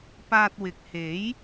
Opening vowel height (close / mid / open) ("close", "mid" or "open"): open